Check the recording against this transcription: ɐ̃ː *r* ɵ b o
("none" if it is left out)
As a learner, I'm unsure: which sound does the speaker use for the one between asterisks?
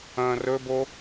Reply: r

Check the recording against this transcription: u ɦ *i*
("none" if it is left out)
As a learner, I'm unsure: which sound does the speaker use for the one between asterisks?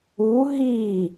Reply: i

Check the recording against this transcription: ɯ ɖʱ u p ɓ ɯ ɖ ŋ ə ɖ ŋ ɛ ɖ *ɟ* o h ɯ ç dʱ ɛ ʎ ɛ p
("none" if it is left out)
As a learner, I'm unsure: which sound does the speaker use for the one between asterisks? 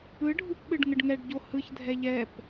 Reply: ɟ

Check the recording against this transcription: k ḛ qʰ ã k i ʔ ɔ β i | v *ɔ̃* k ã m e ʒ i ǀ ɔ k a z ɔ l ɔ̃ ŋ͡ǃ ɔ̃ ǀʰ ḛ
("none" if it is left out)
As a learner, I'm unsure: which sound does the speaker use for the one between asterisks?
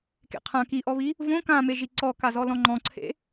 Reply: õ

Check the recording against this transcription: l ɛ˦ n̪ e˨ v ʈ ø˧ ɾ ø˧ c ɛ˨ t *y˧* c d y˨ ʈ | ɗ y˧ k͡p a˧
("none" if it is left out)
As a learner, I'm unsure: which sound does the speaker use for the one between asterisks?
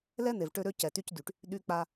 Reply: y˧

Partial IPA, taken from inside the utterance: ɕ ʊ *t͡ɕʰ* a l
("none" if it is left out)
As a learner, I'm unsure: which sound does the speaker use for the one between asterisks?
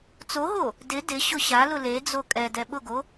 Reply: ɕ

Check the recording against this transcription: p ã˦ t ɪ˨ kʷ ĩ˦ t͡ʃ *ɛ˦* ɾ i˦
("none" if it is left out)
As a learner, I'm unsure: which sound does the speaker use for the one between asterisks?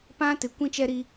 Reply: ɛ˦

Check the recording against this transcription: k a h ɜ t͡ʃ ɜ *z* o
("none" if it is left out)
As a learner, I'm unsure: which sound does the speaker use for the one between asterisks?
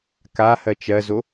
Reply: z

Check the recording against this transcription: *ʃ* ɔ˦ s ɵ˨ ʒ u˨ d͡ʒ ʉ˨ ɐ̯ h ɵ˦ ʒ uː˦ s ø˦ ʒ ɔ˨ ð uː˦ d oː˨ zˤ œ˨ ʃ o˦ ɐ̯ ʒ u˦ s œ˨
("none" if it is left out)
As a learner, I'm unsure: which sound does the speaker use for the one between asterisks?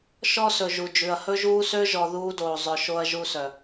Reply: ʃ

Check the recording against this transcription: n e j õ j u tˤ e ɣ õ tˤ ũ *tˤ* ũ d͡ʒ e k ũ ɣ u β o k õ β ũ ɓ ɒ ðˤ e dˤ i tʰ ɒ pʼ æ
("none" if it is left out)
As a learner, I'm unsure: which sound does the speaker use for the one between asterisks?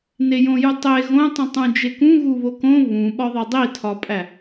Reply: tˤ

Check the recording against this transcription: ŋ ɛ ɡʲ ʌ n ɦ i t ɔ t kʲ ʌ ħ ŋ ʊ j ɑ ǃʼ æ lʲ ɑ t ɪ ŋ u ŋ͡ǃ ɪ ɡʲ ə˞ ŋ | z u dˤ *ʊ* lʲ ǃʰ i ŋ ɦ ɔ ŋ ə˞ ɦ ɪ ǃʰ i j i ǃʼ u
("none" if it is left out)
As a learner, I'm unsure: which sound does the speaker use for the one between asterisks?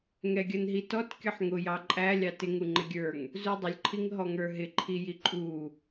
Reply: ʊ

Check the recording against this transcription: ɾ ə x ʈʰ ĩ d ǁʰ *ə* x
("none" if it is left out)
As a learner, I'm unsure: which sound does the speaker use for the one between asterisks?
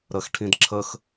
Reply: ə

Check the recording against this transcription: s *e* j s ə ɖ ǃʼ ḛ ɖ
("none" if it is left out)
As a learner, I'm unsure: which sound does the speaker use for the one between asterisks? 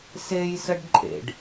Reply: e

